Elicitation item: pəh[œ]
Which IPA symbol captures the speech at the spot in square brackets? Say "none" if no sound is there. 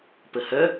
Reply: œ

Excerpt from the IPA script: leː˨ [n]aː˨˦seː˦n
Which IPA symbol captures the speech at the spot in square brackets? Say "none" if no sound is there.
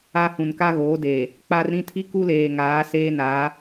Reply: ŋ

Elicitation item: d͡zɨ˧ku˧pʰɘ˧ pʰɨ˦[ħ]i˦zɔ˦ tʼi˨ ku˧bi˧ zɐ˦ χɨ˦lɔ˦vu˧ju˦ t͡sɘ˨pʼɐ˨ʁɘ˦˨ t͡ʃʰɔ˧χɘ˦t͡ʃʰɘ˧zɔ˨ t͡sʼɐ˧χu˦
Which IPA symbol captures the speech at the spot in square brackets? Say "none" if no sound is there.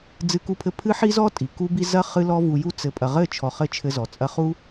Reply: ħ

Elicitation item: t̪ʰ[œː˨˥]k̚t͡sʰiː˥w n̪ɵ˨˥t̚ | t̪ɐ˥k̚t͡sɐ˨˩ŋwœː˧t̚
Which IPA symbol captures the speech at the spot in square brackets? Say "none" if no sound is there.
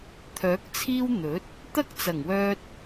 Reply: œː˨˥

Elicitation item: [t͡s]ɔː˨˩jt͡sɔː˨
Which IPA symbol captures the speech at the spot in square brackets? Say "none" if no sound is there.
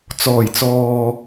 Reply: t͡s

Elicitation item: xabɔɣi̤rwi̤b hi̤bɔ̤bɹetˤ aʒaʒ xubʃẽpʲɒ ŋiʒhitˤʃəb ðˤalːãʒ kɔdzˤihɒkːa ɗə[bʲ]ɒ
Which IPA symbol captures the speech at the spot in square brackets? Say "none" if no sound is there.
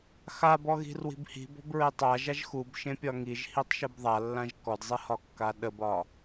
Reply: b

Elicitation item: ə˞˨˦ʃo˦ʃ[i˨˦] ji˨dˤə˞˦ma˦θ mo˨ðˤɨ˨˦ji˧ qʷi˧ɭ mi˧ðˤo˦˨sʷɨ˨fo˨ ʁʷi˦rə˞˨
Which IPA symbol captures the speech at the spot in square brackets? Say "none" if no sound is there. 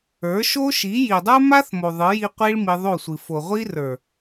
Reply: i˨˦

